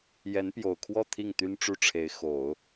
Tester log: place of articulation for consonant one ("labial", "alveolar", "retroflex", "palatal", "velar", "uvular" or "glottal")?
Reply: palatal